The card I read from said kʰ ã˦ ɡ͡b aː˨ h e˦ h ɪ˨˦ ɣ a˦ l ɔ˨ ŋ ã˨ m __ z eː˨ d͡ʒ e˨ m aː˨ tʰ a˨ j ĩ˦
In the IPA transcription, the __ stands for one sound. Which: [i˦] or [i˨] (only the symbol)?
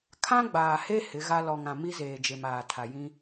i˦